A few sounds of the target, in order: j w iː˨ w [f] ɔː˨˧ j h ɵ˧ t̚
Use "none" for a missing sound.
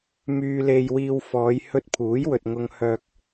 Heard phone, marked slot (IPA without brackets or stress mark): f